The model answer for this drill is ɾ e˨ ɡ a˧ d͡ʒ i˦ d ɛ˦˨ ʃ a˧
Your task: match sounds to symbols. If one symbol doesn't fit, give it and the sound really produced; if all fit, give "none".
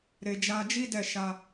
ɡ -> d͡ʒ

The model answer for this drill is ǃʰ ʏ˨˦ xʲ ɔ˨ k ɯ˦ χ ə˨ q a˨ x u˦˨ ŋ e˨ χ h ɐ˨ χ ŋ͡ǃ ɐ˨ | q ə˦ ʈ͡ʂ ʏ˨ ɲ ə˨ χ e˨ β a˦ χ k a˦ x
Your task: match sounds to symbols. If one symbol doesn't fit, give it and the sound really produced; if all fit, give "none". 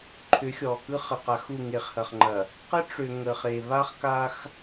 ɲ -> ŋ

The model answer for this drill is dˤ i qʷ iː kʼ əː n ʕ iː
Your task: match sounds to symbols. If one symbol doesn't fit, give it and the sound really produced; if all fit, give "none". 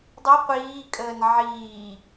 none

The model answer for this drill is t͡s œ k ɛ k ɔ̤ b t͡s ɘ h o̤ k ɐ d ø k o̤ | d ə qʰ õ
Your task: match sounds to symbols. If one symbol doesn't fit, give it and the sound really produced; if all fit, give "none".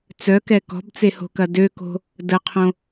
ɘ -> e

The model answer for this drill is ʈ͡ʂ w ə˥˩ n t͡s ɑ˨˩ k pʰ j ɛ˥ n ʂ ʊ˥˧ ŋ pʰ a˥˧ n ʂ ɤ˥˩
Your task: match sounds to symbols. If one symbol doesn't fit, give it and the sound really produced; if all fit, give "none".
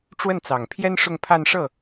k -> ŋ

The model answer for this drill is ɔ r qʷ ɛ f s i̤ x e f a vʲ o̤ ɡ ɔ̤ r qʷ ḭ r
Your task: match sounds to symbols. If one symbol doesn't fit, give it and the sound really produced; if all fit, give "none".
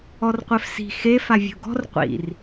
none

